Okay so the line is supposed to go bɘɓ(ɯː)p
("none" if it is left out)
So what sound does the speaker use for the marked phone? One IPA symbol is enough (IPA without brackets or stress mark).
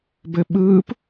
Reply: ɯː